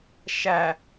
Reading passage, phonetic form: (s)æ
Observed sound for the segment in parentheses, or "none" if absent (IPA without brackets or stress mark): ʃ